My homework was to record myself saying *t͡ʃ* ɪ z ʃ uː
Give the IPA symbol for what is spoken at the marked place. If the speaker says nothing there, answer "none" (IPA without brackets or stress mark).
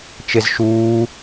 t͡ʃ